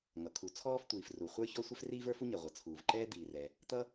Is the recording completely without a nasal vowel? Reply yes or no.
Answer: yes